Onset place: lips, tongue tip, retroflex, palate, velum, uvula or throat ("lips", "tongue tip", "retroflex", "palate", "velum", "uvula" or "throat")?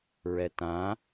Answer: tongue tip